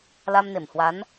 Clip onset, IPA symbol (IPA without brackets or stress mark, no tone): l